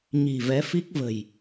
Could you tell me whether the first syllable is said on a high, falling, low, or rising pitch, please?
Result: low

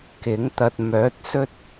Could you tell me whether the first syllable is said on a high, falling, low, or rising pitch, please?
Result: rising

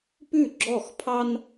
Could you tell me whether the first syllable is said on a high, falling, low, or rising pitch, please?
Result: falling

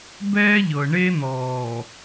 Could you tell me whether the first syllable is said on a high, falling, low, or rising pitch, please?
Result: high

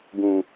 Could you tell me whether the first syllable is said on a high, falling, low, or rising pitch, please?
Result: low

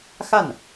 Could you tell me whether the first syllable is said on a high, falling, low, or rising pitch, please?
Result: falling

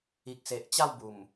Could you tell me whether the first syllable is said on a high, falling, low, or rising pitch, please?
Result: low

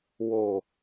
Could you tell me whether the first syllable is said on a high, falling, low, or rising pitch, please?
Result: low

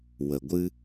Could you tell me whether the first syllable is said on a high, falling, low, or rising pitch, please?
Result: low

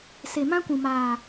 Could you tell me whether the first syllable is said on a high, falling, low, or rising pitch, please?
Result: low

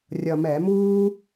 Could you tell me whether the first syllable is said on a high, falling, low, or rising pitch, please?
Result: low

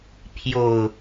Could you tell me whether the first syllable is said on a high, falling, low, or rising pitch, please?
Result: low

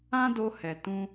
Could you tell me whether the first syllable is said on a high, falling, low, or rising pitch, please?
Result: high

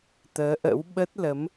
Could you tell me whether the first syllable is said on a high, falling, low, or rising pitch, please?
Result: rising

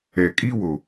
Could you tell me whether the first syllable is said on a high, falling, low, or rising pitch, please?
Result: low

